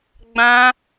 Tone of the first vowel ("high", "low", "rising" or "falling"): high